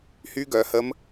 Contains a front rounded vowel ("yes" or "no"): yes